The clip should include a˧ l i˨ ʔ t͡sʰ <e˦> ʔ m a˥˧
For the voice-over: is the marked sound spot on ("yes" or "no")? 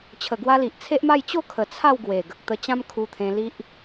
yes